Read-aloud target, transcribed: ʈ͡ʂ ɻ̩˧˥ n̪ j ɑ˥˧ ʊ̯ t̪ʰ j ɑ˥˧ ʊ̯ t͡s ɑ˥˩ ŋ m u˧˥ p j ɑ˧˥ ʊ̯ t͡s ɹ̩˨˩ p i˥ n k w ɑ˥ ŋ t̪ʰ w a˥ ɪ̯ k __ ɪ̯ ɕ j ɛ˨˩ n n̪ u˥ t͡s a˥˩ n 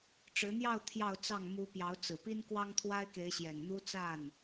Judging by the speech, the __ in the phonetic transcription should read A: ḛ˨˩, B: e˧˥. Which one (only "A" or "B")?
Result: B